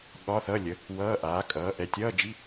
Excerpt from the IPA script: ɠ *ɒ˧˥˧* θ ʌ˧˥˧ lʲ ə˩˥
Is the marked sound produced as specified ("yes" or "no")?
yes